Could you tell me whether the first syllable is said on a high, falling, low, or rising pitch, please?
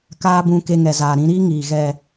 high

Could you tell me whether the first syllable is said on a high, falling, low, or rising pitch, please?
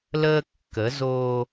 high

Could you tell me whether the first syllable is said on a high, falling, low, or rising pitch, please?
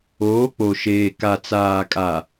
rising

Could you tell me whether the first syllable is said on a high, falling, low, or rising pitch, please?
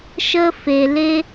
high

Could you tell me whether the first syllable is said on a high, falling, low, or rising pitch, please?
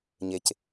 low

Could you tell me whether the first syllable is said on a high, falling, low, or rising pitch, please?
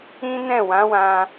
high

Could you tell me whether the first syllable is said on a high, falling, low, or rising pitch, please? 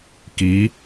rising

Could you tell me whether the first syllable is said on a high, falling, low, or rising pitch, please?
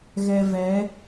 low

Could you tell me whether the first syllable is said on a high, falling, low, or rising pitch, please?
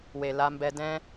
low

